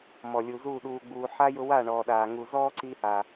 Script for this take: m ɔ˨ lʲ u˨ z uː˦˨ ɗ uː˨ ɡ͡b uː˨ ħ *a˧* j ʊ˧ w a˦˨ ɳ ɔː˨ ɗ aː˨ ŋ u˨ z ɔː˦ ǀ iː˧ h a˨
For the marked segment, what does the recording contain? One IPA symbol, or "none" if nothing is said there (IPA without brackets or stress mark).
a˧